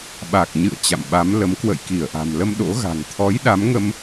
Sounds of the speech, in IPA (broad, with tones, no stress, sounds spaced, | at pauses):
ɓ a˨˩ k̚ ɲ ɨ̰˧˨ ə̯ t͡ɕ a̰˧˨ m ɓ a˨˦ m l ə˨˦ m k w ə̰˧˨ j k i˧˩ ə̯ ʔ a̤˨˩ m l ə˧ m ɗ o̰˧˥ ɣ a̤˨˩ ŋ t̪ʰ ɔ˨˦ j ɗ a˨˦ m ŋ ə˧ m